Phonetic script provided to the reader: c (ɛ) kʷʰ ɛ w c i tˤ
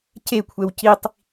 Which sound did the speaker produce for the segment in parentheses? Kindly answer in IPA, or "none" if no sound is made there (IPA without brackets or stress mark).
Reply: e